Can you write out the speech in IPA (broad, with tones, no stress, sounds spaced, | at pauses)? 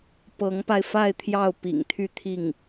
p ɤ˧˥ ŋ p a˧ ɪ̯ f a˥˧ ɪ̯ t̪ʰ j ɑ˥˩ ʊ̯ p ḭ˨˩ ŋ t̪ʰ y˥˧ t̪ʰ i˥˩ ŋ